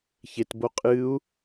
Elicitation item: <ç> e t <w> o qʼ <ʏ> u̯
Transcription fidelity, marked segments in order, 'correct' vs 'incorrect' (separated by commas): correct, incorrect, incorrect